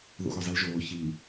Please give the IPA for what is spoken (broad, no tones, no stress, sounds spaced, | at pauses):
ð o̰ ɣ o zˤ i l ʒ oː ç i